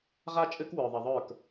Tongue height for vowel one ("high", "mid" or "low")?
low